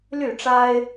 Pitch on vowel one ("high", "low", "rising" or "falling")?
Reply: falling